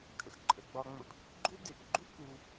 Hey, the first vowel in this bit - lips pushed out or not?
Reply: no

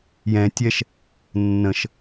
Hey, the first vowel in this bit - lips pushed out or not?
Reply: no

